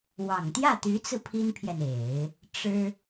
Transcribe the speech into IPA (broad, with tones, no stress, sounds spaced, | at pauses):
w ɑ˨˩ ŋ t̪ j ä˥˩ t̪ y˧˥ t͡s ɹ̩˧ pʰ i˥ n pʰ j ɛ˨ n e˨˩˦ ɪ̯ | ʈ͡ʂ ɻ̩˥